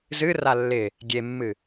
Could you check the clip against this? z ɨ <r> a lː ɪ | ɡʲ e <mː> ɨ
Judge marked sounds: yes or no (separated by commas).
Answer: yes, yes